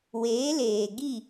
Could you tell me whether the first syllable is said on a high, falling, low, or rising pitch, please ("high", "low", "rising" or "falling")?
rising